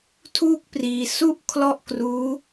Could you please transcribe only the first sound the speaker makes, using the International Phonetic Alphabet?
tʰ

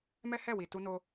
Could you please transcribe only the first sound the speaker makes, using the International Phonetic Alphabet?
m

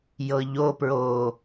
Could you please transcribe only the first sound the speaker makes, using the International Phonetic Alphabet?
j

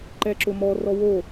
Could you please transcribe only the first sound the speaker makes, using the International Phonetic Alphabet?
ǃ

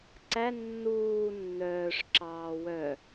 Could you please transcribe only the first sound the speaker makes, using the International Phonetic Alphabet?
ǀ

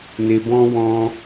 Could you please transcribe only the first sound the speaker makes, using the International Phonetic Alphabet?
n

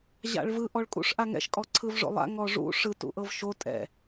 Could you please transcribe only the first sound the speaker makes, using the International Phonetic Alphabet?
ʑ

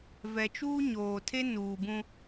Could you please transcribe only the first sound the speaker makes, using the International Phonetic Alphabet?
v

